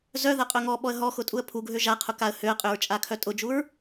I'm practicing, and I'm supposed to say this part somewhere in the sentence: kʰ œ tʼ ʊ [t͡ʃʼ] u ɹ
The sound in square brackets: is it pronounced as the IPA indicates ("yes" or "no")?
no